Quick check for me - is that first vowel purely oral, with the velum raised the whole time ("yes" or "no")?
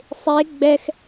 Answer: yes